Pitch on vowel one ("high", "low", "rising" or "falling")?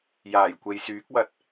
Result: low